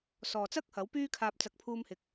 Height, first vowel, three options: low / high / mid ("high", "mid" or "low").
mid